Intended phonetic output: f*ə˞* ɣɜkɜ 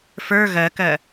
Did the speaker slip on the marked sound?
no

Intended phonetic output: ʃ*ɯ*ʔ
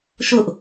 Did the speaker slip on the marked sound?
yes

